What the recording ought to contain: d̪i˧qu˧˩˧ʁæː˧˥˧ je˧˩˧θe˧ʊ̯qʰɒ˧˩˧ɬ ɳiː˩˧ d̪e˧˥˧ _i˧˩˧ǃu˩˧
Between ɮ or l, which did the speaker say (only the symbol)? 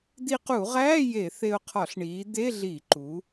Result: ɮ